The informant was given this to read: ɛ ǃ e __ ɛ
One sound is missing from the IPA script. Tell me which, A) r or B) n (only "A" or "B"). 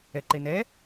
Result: B